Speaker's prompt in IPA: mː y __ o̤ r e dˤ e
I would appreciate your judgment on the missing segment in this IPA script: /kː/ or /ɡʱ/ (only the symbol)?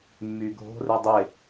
ɡʱ